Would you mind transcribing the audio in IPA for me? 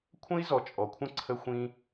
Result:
kʷʰ ə̃˦ i̯ z ɔ˨ t͡ʃʼ ɔ˨ kʷʰ ə̃˦˨ ǀʰ ə˦ xʷ ĩ˦

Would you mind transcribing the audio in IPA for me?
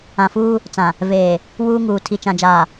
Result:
ã˨ f uː˦ | t͡s ã˨ | v eː˨ | w uː˦ ŋ uː˨ tʰ i˨ t͡ʃ ã˨ d͡ʒ aː˨

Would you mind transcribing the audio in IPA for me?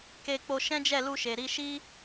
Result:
k e˧ k͡p o˧ ʃ ɛ̃˦ d͡ʒ ɛ˦˨ l u˧ ʃ e˨ ɾ i˧ ʃ i˦

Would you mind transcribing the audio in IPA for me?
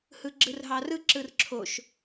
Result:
h ɯ ɡ͡ǁ ɯ r ɦ ɑ r ɯ ǁ ɯ r ǁʰ o ʃ

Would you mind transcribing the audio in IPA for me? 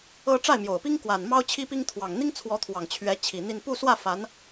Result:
ɤ˥ ʈ͡ʂ a˥˩ ɪ̯ m j o˨˩ ʊ̯ p i˥ ŋ k w a˨˩ n m ɑ˥ ʊ̯ t͡ɕʰ i˥ p i˥ ŋ t̪ʰ w ɑ˨˩ ŋ n̪ i˥ ŋ t͡sʰ w ɔ˧˥ t̪ʰ w ɑ˨˩ ŋ t͡ɕʰ ɥ ɛ˧˥ t͡ɕʰ i˨˩ n̪ i˥˧ n p u˥˧ s w ä˥˩ f a˧˥ n

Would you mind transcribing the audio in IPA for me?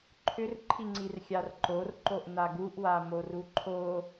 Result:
ǃʰ ʏ r ǃʰ i ŋ͡ǀ i r xʲ a r ǃ o r ǃ o ʔ n a ɡ u ʔ w a m o r u ǃʰ o

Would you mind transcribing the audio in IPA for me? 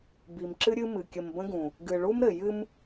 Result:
b i˨ m ǁ ɨ˦ ɾʲ ɨ˦ m ɨ˨ kʲ ə˨ m b ə̃˦ ɡ ũ˨ | ɡ ɨ˨ ɭ u˦ m ɾ ɘ˨ j ɨ˦ m

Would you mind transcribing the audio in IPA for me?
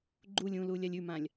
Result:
ɡ͡ǃ u lʲ ũ l u lʲ a lʲ ʉ m ã lʲ

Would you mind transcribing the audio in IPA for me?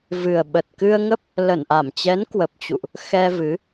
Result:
v ɨ˨˩ ə̯ ɓ ə˨˩ t̚ k ɨ˧ ə̯ ŋ ə˦˥ p̚ | l ə˧˩ n ʔ a˧˩ m t͡ɕ ɛ˨˦ n k w ə˨˩ p̚ t͡ɕ ṵ˧˨ ʔ | x ɛ˧ v ɨ˨˦

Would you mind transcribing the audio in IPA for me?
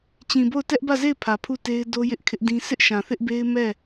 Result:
t͡ɕ ĩ˨ b o˦˨ ʊ̯ t ɛ˦ ʔ b ä˦˨ z e˦˨ ɪ̯ pʰ ä˨ pʰ u˦˨ t e˦ ɪ̯ d o˦ j ɪ˦ ʔ kʰ ɪ˦ ʔ d ĩ˦ sʰ ɪ˦ ʔ ʃ ã˨ θ ɪ˦ ʔ b e˦ ɪ̯ m ɛ˦˨

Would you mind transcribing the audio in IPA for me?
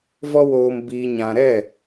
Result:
v ɔ˦ w oː˧ m b iː˧ ɲ ã˧ ɾ ɛ˦˨

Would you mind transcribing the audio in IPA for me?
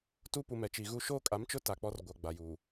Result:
t u˦ p u˨ m ɛ˨ t͡ʃ i˨ ɣ uː˦ ʃ oː˦ kʼ a˨˦ m t͡ʃ ʊ˦ t a˨ k͡p ɔ˦ r ɡʷ a˨ ɡ͡b a˨ j uː˨

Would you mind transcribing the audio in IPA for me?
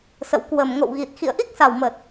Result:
s ə̰˧˨ w k w ə˨˩ m ŋ o̰˧˨ w ɣ i˨˩ t̚ x ḭ˧˨ ə̯ ʔ i˦˥ k̚ s a˨˩ w m ə˨˩ t̚

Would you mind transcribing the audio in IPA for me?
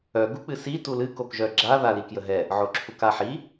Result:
œ ɡ u k͡p ɨ s i t u l ɨ k o k ʒ œ ɡ͡ǁ a ð a l i k j ə ɦ ɛ | ʕ o ǁʰ u k a ħ i

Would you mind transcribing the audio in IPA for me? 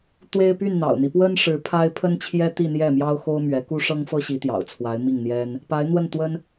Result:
t̪ w e˥ ɪ̯ p y˥˩ n n̪ ɑ̰˨˩ ʊ̯ n̪ i˦ p w ə˥ n ʂ ɻ̩˧˥ pʰ a˥ ɪ̯ pʰ ə˥ n t͡ɕʰ j ɛ˥ t̪ i˥˧ n̪ j ɛ˥˩ m j ɑ˥ ʊ̯ x o˥ ʊ̯ m ɥ ɛ˧˥ k u˥ ʂ ɤ˥ ŋ f ɤ˥ ɕ i˧˥ t̪ j ɑ̰˨˩ ʊ̯ t͡sʰ w a˧˥ ɪ̯ m i˥˩ ŋ n̪ j ɛ˥ n | p a˧˥ ɪ̯ n̪ w ə˥˩ n t̪ w ə˥ n

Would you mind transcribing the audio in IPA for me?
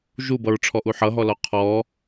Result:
ʒ u b ʌ ɹ ʈ͡ʂʰ ɔ ʔ u ħ ʌ ɦ ɔ l ɔ qʰ ɔ

